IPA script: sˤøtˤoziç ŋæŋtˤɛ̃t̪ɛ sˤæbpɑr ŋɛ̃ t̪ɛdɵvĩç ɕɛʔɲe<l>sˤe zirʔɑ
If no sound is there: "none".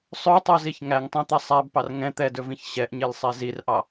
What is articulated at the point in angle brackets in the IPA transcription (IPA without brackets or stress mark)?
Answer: l